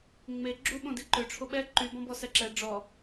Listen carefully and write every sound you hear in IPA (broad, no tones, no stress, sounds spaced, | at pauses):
ŋ͡m e ɡ͡ǁ u ɓ õ d i ǃ ø ʈ͡ʂʰ o ɓ ɛ ǃ y b ɔ̃ b ɔ s ɛ ǁ ɛ ɖ͡ʐ ɔ